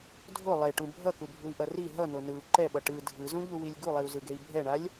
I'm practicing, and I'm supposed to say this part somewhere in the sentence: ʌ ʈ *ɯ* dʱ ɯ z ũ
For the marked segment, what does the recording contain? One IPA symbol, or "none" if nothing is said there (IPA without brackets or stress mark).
ɯ